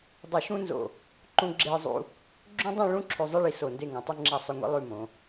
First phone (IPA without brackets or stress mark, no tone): dˤ